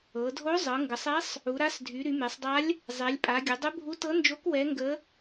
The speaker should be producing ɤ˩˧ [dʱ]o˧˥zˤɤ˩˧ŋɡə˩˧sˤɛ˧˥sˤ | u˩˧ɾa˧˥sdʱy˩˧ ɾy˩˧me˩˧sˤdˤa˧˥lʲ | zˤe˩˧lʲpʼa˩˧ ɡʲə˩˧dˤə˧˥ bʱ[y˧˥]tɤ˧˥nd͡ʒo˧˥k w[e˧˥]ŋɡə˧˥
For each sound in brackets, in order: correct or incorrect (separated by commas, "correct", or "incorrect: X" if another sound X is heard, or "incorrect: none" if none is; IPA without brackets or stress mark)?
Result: correct, incorrect: u˧˥, incorrect: ɛ˧˥